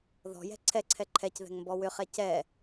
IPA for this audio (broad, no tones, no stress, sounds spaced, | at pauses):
ð ɔ̤ j ɛ̤ ǀʰ ɛ ǀʰ ɛ ǃʰ ɛ c ð ɛ̤ ŋ m b ɔ w ʏ χ ɛ c ɛ